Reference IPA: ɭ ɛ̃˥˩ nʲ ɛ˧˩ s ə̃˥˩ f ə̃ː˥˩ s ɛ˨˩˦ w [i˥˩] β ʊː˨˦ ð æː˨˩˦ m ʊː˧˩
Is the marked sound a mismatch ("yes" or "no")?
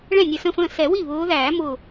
no